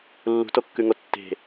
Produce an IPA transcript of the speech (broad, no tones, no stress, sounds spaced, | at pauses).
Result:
lː ṳ t o kː ʉ ŋ o tː e̤